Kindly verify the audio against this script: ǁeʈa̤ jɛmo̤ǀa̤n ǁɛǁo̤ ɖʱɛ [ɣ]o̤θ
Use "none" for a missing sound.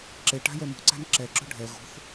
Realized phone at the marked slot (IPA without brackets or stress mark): ɣ